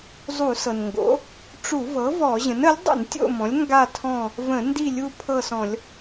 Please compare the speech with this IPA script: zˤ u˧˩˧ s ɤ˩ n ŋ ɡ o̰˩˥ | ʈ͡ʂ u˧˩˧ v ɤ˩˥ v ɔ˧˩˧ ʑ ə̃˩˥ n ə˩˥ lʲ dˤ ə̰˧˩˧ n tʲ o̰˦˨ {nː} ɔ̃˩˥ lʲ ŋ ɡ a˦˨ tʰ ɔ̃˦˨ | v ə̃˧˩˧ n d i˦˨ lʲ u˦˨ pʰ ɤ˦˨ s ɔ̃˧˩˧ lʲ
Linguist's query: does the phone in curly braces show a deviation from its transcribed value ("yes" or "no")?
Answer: yes